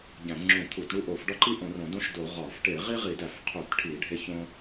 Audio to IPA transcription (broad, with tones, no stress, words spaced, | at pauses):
ɟæ̃˧˩˧ŋ͡ǁũ˧˩˧ t̪ʰu˧˩˧tɳu˦ ʔo˧˩˧fɖɒ˦ǃi˦ʔõ˧˩˧r õ˧˩˧dõ˦ʃdo˧˩˧ ʁɒ˧˩˧f ʈe˧˩˧ʁi˦ʁi˧˩˧dæ˧˩˧f qʰu˧˩˧tʈʰi˧˩˧ ɖʱe˦çõ˦